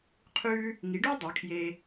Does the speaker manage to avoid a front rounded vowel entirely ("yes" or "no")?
yes